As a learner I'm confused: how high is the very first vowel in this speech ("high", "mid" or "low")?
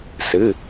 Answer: high